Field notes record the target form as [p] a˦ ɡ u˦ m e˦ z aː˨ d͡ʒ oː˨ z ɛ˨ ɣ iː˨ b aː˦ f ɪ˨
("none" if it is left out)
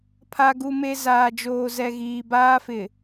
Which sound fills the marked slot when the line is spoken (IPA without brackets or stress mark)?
pʰ